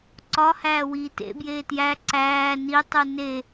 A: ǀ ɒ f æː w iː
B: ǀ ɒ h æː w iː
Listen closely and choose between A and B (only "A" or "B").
B